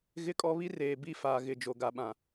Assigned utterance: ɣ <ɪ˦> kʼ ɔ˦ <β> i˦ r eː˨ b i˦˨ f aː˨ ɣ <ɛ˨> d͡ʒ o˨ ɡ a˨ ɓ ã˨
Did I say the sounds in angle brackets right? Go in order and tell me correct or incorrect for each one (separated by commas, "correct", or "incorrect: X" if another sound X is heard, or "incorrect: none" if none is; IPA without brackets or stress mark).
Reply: correct, correct, incorrect: ɪ˨